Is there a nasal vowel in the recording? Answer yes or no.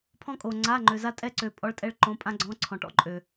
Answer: yes